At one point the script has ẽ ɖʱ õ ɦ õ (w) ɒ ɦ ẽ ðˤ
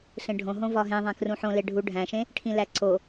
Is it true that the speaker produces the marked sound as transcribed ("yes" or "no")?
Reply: no